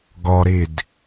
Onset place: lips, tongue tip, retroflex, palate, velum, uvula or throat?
velum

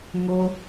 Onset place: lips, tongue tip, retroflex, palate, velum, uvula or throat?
velum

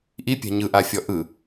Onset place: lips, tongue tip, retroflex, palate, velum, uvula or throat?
throat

